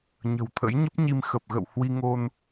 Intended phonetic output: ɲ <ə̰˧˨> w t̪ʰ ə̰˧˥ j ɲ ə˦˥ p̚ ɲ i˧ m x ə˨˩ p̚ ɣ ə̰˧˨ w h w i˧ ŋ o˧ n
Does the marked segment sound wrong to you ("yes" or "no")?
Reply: yes